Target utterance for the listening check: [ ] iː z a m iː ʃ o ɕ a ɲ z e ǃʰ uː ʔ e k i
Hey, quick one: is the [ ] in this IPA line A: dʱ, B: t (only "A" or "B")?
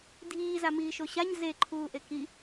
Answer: A